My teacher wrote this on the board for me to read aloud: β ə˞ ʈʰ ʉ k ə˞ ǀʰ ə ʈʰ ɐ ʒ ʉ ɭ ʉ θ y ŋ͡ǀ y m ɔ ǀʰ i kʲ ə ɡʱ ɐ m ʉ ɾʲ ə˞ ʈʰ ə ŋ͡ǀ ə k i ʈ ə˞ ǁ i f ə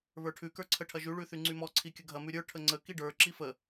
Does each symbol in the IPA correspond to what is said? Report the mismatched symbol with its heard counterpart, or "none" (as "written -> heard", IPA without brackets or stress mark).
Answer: ʈ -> ɖ